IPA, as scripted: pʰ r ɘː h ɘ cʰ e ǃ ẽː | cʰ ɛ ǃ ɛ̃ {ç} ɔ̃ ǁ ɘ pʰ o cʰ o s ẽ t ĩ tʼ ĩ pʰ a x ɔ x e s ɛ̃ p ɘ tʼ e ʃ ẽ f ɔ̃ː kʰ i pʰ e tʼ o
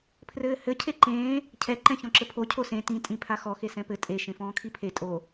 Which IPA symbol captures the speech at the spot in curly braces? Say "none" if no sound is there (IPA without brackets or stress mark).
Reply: ç